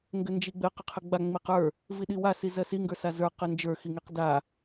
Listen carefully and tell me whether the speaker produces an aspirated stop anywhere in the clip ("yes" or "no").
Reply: yes